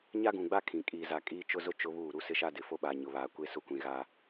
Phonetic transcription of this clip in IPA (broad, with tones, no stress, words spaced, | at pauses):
ɲa˦ɡũ˨ɡ͡ba˦ kʰĩ˨ kʼiː˨za˨ kʼiː˦t͡ʃʊ˦zʊ˦ t͡ʃʊ˦βuː˦˨ ɾu˦sɪ˦ʃa˦dɪ˨ fo˦ɓaː˨ɲʊ˨βaː˨ kʷe˦ sʊ˦kʷĩ˨ɣa˦